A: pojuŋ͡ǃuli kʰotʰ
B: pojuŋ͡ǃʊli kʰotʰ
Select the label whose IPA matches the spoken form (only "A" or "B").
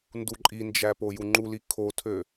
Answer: A